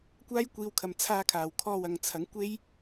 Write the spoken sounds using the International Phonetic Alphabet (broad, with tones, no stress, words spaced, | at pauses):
kʷaː˥jkʷiː˧wkʰɐ˨m t͡sʰaː˧kʰaː˨˩w kʰɔː˧wɐ˨ŋt͡sʰɐ˨˥ŋ kʷe˥j